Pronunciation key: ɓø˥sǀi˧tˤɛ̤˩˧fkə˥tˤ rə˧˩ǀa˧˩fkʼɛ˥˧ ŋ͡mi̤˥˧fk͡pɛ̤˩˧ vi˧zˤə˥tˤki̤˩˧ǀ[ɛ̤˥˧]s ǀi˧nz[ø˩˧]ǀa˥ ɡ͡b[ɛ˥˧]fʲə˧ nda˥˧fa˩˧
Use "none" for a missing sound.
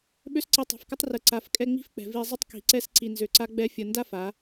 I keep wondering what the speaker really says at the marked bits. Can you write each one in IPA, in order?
ɛ˥˧, ø˧, ɛ˥

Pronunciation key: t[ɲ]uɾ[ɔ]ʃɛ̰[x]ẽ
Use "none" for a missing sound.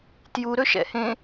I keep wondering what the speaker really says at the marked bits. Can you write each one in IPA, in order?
j, ɵ, h

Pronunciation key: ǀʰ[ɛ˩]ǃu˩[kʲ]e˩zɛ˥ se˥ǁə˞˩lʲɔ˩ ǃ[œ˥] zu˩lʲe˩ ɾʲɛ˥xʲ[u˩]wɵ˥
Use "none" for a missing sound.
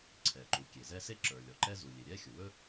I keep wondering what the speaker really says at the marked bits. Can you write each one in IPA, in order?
ɛ˩, kʲ, ɛ˥, u˩

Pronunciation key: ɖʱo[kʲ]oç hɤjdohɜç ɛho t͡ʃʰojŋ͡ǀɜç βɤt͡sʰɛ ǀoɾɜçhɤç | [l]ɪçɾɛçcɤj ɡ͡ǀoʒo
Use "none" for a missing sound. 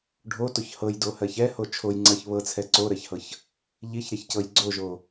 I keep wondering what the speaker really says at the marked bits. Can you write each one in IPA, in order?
t, ʎ

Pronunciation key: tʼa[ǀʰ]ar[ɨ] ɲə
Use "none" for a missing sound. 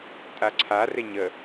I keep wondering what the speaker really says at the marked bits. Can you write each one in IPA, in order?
ǀʰ, e

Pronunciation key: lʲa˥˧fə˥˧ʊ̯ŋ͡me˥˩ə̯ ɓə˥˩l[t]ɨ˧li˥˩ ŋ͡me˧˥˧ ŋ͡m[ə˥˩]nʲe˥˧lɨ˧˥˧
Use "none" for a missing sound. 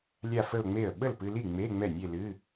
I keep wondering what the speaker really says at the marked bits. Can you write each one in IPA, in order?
p, ɛ˥˩

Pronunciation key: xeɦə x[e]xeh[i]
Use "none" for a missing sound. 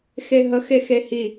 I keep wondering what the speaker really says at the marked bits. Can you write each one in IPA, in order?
e, i

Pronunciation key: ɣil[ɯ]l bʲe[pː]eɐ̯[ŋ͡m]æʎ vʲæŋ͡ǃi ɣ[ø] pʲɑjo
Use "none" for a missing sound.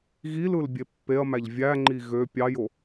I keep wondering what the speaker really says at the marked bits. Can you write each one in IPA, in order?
ɯ, pː, m, ø

